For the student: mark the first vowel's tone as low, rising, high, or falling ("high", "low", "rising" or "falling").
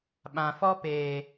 low